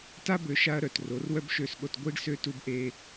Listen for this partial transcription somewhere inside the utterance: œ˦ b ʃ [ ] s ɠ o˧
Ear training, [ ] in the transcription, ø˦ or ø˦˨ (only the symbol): ø˦˨